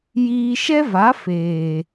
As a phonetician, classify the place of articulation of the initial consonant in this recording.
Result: palatal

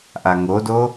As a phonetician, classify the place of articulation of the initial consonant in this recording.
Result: glottal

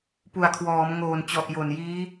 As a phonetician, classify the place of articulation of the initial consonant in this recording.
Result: labial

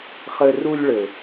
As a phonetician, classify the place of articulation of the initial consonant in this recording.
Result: uvular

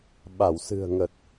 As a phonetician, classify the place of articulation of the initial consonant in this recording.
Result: labial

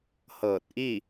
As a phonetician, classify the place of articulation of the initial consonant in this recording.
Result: glottal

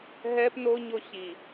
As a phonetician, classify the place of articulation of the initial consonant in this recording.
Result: glottal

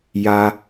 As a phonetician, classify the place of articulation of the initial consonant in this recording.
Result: palatal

